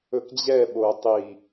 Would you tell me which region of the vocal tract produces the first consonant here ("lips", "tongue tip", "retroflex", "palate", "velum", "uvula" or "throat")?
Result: velum